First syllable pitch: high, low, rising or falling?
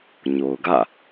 low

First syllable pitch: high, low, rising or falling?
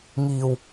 low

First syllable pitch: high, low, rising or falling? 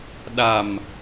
low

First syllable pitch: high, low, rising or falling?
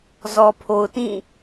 low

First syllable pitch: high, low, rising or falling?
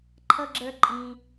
low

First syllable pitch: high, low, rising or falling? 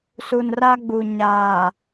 low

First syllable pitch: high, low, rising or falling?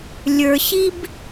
low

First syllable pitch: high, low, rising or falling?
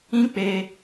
high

